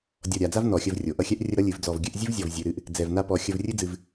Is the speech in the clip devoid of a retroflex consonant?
yes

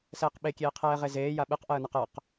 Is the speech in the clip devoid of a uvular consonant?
no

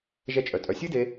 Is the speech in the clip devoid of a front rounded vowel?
no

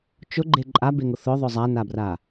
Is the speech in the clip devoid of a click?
no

